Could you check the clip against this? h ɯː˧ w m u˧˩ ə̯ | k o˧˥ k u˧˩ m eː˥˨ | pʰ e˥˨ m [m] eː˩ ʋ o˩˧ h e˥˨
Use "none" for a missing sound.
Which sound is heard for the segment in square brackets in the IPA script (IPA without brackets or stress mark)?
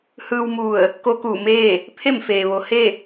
f